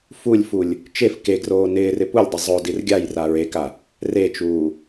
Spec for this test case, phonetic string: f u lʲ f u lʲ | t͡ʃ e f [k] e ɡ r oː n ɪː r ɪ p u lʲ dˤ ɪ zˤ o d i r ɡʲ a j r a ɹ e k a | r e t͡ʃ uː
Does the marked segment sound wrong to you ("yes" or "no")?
no